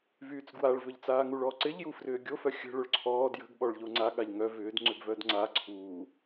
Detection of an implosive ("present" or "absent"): present